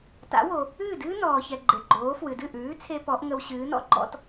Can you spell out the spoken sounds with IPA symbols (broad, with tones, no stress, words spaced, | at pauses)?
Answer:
ta̰˩˥wo˩ | ɨː˥˩dɨː˥ nɔː˩çɛ˩ ɡ͡ǃe˩ɡ͡ǃoː˩˥ fwɨ˩dɨ˥˩ʔʉː˩˥t͡sʰe˧ pɔ˩˥ʔŋə˧wɕɨː˩˥ nɔ̰˥ɡ͡ǃɔ̰˥t